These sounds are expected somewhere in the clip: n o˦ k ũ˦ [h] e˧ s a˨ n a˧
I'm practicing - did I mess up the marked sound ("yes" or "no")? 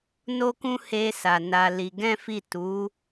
no